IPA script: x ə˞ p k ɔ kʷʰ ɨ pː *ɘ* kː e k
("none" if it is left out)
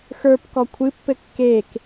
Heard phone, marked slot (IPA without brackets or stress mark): ɘ